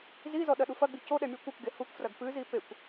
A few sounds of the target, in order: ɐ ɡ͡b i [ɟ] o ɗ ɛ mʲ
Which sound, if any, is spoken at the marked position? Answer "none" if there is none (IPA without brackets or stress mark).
c